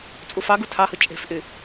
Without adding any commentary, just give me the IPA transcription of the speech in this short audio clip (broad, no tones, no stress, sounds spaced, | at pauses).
t͡sʼ u f ɑ ɡ u tʰ ɑ h ɯ t͡ʃʼ e̤ f ʔ y